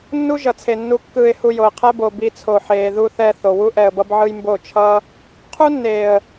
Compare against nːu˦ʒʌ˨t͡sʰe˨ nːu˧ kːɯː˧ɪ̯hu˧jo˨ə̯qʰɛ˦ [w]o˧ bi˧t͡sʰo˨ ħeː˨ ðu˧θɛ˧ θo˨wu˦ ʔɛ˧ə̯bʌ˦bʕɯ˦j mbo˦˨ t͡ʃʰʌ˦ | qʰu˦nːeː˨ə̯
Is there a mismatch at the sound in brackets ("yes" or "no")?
yes